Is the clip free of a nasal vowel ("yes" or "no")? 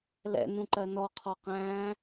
no